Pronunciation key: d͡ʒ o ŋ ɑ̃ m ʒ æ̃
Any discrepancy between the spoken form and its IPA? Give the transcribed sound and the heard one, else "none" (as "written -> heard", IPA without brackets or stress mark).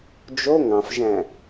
m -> f